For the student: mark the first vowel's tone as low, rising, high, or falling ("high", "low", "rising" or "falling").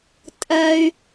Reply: high